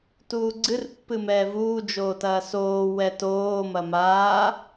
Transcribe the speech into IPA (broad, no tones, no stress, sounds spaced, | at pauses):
t uː ɡ͡ǀ ɨ r pː ɨ m ɛː v uː d͡ʒ oː t ɐː s oː w ɛ t oː m ɐ m aː